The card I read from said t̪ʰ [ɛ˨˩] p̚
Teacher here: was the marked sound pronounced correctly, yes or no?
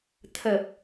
no